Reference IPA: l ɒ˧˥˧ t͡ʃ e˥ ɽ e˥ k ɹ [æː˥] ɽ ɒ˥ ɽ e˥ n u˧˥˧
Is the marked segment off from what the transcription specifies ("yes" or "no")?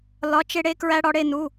yes